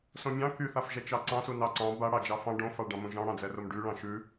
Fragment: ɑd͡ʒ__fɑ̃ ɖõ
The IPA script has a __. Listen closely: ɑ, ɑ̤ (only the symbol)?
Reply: ɑ